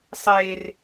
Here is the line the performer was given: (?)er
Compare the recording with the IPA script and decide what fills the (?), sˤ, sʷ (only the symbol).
sˤ